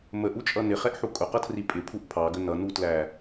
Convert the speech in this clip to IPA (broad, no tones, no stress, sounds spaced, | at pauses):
m ə ʔ u t͡ʃʼ ʌ n ɪ χ ɛ ʔ ħ u kʼ ʊ q ʌ tʰ r i pʼ ɪ pʰ u ʔ pʰ ɑ ɡ ə n ʌ n u t l æ